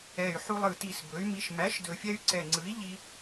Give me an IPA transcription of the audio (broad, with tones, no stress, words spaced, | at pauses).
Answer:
ɛ˨˩y̯ħu˧lˠɯ˨˩ ti˨˩s bɵ˩˥y̯mi˧ʃ mæ˩˥ʃdɵ˨˩fʲɛ˧y̯ ǀɛ˨˩ŋ͡ǀɯ˩˥i̯ ʎi˧